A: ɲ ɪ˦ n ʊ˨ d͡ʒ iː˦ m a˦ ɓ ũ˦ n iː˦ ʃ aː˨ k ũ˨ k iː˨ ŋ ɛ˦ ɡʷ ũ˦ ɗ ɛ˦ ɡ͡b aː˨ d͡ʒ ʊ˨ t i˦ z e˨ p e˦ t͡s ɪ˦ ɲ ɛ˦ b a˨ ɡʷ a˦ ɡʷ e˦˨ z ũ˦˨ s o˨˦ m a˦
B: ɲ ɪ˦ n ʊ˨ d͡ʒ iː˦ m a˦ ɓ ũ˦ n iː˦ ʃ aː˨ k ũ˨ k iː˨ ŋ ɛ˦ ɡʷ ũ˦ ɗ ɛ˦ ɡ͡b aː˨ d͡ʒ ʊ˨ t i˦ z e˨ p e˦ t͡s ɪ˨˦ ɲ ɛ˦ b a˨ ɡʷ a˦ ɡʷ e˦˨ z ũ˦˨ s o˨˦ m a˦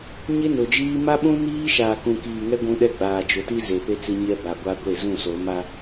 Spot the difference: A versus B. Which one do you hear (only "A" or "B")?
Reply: A